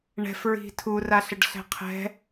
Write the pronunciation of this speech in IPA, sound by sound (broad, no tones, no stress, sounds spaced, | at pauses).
ɳ ɛ̤ f ɹ i̤ tʰ u r a ɬ ə ɖ ɬ ɛ̤ qʰ ɛ̤